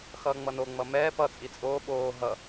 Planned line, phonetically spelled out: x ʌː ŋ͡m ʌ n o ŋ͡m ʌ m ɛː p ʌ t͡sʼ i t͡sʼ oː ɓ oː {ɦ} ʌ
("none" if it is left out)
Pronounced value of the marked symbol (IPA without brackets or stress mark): ɦ